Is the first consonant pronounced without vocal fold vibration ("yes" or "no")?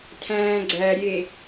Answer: yes